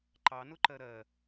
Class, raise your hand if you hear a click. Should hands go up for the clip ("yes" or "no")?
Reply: yes